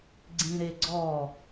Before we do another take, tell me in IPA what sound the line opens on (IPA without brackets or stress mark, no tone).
ɡ͡ǀ